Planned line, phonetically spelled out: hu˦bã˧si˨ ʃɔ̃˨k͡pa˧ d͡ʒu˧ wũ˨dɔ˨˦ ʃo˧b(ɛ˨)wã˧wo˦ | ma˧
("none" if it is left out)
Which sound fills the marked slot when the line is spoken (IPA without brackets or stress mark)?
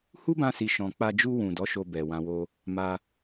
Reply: ɛ˨